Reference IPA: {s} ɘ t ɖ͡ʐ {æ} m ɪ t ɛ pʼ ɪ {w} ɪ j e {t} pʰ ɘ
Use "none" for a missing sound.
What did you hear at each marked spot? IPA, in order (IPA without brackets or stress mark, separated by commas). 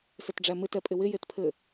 s, æ, w, t